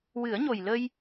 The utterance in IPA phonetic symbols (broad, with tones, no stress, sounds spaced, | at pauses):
w ɨ˨˩˦ ə̯ ɲ o˨˩ j l ə˧ j